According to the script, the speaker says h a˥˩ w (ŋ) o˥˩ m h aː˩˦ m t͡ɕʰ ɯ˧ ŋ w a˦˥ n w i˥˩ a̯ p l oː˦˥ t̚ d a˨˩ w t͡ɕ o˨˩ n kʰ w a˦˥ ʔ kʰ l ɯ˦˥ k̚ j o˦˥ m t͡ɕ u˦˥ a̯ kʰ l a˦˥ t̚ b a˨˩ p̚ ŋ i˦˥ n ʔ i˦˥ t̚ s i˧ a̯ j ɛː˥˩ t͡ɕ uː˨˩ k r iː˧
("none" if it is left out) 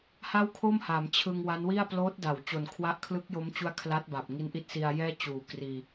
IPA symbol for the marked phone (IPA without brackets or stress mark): kʰ